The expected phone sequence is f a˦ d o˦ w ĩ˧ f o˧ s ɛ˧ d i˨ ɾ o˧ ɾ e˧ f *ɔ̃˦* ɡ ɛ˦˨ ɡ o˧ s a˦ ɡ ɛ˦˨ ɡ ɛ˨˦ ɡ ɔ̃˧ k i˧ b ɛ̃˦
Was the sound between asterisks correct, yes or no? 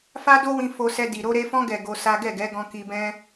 yes